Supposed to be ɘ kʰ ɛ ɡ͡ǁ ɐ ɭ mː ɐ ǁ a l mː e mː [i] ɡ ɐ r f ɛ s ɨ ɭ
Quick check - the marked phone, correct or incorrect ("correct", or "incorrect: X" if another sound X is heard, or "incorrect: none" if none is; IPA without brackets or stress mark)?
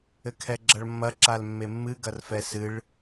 incorrect: ɨ